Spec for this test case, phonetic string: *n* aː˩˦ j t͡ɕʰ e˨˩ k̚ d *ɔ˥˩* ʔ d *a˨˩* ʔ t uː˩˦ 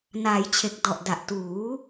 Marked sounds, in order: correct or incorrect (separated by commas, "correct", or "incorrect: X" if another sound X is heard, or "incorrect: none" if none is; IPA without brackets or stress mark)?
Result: correct, incorrect: ɔ˨˩, correct